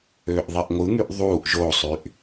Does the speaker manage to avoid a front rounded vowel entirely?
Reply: no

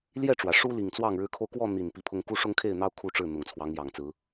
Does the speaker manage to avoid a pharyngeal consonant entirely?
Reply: yes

